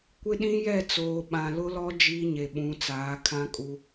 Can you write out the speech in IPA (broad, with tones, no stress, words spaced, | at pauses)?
kʷɪ˦ɗĩ˦ jɛ˦˨t͡soː˨ ɓã˨lʊ˦lɔ˦ d͡ʒiː˦ɲe˨ɓũ˨˦t͡saː˨˦ kʰã˦kʼu˦